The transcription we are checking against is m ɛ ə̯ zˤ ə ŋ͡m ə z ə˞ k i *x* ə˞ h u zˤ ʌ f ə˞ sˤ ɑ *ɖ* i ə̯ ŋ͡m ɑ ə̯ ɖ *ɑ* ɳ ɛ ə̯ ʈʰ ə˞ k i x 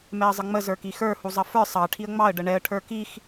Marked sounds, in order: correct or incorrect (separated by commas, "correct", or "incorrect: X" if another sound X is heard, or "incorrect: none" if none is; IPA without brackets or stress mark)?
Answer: correct, incorrect: ʈʰ, incorrect: ə